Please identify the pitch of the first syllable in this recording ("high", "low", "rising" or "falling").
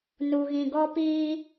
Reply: low